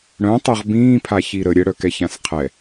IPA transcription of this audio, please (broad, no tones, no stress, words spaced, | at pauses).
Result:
ɽœ̃tˤɜʁ bĩːpʰaçi ɾə ɾʲəɽœkɛçãs qʰɛ